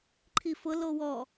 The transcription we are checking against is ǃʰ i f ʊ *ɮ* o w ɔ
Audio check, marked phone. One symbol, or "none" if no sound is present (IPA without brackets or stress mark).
l